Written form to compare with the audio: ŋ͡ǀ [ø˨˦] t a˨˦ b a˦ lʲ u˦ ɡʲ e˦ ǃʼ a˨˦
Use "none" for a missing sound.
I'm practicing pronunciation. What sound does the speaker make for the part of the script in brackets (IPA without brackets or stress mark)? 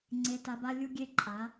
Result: e˨˦